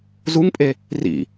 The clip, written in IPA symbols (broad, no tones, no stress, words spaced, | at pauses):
zuŋpʼe | rḭ